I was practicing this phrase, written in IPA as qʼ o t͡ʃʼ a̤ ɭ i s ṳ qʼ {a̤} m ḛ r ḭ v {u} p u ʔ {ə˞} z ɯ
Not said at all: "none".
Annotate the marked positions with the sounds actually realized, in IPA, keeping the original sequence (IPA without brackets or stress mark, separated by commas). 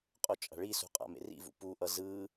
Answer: a̰, ṵ, ʌ